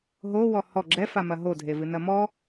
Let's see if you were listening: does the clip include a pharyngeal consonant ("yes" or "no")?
no